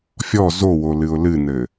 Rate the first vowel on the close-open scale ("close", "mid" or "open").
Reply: mid